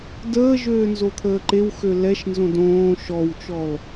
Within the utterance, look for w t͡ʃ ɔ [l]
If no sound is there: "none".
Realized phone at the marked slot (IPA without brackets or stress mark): l